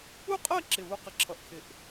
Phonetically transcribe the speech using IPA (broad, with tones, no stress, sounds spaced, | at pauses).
u˥˧ qʼ ɜ˥˧ ǁ ɪ˧˩ β u˧ q ɪ˧ ǁʰ ʌ˧˩ ʔ kʰ ɪ˧˩ ʔ